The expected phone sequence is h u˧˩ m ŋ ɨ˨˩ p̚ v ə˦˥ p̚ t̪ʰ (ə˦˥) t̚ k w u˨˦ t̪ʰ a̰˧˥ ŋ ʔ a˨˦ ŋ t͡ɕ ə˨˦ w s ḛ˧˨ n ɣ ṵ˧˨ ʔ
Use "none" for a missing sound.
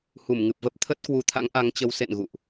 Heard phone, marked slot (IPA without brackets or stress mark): ə˦˥